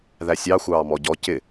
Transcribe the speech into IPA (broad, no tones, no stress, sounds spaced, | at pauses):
ð æ sʲ ɑ xʷ ɑː m ɔ ɟ ɔ c ɪ